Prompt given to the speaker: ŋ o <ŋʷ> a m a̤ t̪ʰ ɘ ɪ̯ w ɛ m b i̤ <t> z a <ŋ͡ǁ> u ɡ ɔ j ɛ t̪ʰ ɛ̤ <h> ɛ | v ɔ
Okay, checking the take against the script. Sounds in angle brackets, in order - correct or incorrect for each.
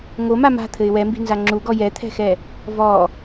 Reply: incorrect: m, incorrect: n, correct, incorrect: x

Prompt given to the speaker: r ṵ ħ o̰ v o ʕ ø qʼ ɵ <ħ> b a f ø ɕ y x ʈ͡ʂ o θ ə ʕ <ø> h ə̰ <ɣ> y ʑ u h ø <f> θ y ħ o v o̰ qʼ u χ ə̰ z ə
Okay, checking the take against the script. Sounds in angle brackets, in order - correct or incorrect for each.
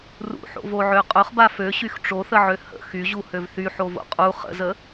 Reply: incorrect: χ, correct, incorrect: x, incorrect: v

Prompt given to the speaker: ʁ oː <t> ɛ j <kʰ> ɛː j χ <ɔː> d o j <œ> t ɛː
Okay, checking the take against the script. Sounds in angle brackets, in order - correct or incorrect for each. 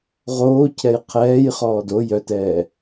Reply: incorrect: cʰ, incorrect: qʰ, correct, correct

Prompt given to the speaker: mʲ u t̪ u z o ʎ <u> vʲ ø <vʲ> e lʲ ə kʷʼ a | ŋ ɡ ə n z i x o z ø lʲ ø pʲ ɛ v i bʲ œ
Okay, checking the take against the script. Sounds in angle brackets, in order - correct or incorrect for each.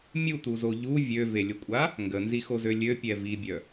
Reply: correct, incorrect: v

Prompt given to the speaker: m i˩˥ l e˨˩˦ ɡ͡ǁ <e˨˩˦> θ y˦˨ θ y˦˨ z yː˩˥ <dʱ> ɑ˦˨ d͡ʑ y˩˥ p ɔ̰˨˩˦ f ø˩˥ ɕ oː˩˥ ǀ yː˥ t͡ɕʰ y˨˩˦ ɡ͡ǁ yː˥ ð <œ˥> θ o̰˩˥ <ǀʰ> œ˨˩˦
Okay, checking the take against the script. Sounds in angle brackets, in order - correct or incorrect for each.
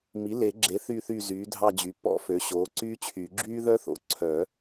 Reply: incorrect: e˩˥, correct, correct, correct

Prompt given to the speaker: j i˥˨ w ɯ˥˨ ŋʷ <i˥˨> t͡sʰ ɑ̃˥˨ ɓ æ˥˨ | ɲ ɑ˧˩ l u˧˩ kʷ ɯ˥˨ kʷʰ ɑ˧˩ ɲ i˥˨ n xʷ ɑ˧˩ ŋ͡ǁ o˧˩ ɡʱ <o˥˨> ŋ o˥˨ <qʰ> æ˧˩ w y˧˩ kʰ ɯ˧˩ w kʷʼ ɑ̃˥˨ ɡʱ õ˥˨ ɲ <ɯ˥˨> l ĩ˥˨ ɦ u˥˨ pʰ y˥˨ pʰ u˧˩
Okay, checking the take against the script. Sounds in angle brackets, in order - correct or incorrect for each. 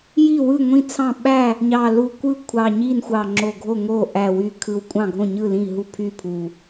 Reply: incorrect: ĩ˥˨, correct, incorrect: ʔ, correct

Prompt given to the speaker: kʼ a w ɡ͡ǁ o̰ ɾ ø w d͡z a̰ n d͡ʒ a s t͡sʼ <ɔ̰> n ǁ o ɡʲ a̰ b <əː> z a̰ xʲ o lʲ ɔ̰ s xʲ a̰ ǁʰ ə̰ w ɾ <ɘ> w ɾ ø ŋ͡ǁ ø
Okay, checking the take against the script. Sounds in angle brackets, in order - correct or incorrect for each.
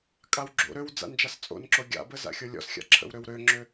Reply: incorrect: o̰, incorrect: ə, incorrect: ø

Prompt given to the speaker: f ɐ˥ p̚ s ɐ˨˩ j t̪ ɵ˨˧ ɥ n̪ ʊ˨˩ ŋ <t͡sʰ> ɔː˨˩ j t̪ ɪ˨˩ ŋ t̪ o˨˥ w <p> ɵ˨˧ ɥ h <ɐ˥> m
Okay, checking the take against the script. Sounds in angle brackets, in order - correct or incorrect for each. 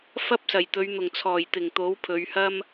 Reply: correct, incorrect: pʰ, correct

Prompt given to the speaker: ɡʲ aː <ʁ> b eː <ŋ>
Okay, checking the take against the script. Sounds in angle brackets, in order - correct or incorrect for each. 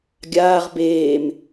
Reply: correct, incorrect: m

